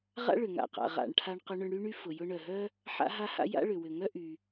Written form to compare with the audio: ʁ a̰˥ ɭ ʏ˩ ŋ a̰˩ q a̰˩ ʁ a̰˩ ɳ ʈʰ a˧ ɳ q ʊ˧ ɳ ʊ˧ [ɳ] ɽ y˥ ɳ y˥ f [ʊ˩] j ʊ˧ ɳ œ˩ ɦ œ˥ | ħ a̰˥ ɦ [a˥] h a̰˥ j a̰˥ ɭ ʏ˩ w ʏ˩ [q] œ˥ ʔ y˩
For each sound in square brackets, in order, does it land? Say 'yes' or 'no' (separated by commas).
yes, yes, yes, no